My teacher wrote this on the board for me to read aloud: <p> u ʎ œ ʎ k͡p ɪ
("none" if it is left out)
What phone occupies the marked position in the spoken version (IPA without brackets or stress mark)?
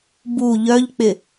b